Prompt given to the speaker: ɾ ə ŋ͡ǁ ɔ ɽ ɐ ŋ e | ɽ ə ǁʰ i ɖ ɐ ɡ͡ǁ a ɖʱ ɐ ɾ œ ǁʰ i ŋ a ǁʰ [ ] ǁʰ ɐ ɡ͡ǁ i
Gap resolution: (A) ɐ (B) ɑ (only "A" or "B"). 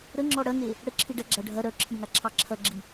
B